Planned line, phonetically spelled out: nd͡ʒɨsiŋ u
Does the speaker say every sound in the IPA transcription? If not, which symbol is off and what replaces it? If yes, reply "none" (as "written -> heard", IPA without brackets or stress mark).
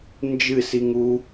none